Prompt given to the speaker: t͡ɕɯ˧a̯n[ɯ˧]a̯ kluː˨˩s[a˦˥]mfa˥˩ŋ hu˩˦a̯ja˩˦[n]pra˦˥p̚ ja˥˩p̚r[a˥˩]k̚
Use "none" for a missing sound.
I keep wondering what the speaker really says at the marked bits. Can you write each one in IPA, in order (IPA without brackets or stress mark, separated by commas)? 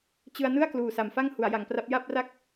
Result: ɯ˥˩, a˨˩, ŋ, a˥˩